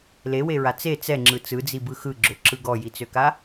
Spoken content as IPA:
l e w e ɹ a t͡s e t͡s ɛ ŋ͡ǁ ɯ t͡s ɯ d͡z i b ɯ x ɯ ɡ͡ǁ ø ǁ ɯ ɡ ɔ j i t͡s ø k a

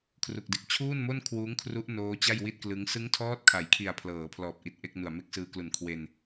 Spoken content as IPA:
kʰ r u˨˩ k̚ d e˨˩ k̚ t͡ɕʰ uː˥˩ n m o˥˩ n kʰ w uː˦˥ ŋ kʰ r u˦˥ ʔ n oː˦˥ t͡ɕ a˥˩ j w i˥˩ t̚ k l ɯ˦˥ ŋ s ɯ˦˥ ŋ tʰ ɔː˦˥ t̚ kʰ a˩˦ j kʰ i˨˩ a̯ pʰ l ɤː˩˦ pʰ l ɔː˨˩ p̚ ʔ i˨˩ t̚ ʔ e˥˩ k̚ n u˨˩ a̯ m e˥˩ k̚ s ɯː˧ k l u˨˩ n kʰ w e˧ n

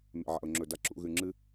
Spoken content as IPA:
m ḛ˨ ʕ a̰˨ ʊ̯ ŋ͡ǁ ɵ˨ d a˨ ǁ ṵ˨ ɣ ʉ˨ ŋ͡ǁ ɨ˦

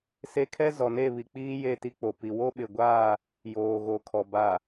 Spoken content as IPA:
s e˨ kʰ ɛ˦ z ɔ˨ n e˦˨ β i˨ k͡p iː˦ j e˦˨ t i˦ k͡p o˨ p i˨ w o˦ ɓ ɪ˨ ɡʷ aː˦˨ | j oː˨ ɣ o˨ kʰ ɔ˨ b a˨

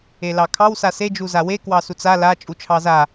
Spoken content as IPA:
e l ɑ kʰ ɑ w s a s e d͡ʒ u z a w e k w ɑ s u t͡s a l a t͡ʃʼ u t͡ʃʰ ɑ z a

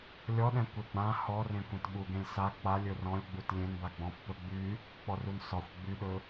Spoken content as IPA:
lʲ ɔ ɗ ɛ̃ kʷ e ɡ͡b ã h ɔ r ẽ kʷ ɛ̃ t ɓ u ɡ ẽ lʲ s a k͡p a lʲ ɵ r ɔ̃ lʲ ɡ͡b u t lʲ ẽ n b a ɡ͡b ɔ̃ pː ɵ ɡ͡b y | k͡p ɔ r u n s ɒ xʷ ɡ͡b y ɗ ɵ

